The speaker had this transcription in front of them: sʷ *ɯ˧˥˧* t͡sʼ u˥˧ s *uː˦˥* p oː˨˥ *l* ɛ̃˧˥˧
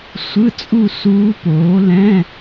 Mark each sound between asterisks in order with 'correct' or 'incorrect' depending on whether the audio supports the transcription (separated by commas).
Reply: correct, correct, correct